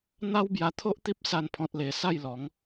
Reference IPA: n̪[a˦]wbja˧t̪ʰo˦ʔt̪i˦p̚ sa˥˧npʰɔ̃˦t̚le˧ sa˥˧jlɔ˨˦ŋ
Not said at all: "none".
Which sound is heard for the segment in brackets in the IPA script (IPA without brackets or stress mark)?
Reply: a˦